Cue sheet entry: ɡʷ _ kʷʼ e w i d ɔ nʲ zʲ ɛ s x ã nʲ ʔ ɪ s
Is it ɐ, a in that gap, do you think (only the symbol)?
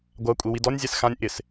a